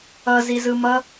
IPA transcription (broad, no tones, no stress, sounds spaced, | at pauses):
ʌ z i z ɯ m ʌ